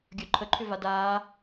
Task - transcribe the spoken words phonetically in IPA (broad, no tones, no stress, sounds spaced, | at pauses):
ɡʲ œ ǃʰ ə ǃʰ ʏ v a d aː